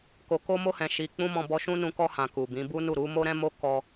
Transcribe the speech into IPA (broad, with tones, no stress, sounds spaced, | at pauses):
k o˨ k o˧ m o˧ h ɛ̃˨ ʃ i˨ k͡p ũ˧ m ɔ̃˧ b ɔ˧ ʃ ũ˦ n ũ˧ k ɔ˧ h ã˨ k u˨ b ĩ˨˦ b u˦ n u˦˨ ɾ u˨˦ m o˦ ɾ ɛ̃˦ m o˦ k ɔ˦